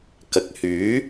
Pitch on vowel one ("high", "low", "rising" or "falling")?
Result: low